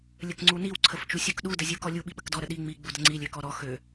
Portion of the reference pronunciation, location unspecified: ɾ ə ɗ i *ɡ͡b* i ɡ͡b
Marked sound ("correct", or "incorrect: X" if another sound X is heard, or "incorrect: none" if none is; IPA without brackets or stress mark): incorrect: ŋ͡m